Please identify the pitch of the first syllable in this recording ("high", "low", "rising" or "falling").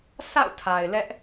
falling